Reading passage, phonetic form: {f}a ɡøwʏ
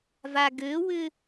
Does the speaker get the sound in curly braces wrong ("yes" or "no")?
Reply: yes